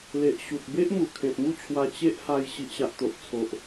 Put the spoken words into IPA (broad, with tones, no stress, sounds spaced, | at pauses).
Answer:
l e˨ ʔ ɕ u˨ t̚ b e˦ ʔ m u˨˩ kʰ ẽ˨ p̚ m u˥˧ t͡ɕʰ w a˧ t͡ɕ e˦ ʔ h a˧ j ɕ i˨ ʔ ɕ a˨ ʔ t̪ o˨ ʔ t͡sʰ o˨ ʔ